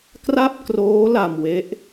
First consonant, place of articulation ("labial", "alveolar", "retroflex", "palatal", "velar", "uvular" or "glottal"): velar